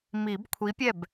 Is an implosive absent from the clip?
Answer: yes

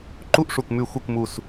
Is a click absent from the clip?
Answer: no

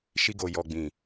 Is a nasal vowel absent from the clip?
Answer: no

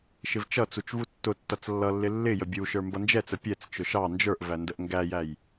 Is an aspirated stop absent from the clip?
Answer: yes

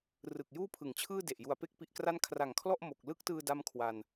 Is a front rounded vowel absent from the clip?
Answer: yes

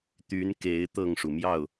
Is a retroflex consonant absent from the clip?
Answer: no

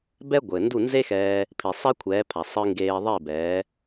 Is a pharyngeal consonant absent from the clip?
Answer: yes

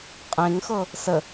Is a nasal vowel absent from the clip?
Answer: no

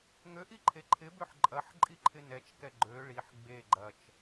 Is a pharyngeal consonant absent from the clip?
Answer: no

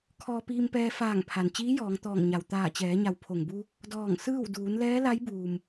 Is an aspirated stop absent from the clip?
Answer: no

